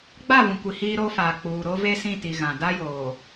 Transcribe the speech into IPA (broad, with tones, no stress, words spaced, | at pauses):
ɡ͡ba˦˨vũ˨ kʷi˨hiː˦ɾoː˦faː˨ k͡puː˨ ɾo˦ve˦sĩ˦˨ti˨ ɣã˨ da˦joː˨